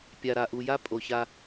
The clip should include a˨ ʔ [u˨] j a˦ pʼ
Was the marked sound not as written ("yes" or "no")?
no